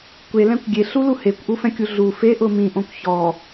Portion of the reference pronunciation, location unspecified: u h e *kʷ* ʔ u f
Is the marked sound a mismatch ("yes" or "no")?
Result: no